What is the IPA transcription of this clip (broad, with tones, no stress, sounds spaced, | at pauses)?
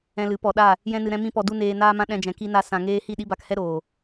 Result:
ɛ̃˧ l ɨ˨˦ p ɔ˨ ɗ a˦˨ | j ɛ̃˦ n ɨ˧ ɾ ɛ̃˦ m ĩ˦ p ɔ˧ d u˦ n eː˧ n aː˦ m ã˦ ɗ ɛ̃˧ d͡ʒ ɛ̃˨ k i˧ n a˧ s ã˨ ŋ eː˧ h i˦˨ ɗ i˦ b a˧ k h ɛ˦ ɾ oː˨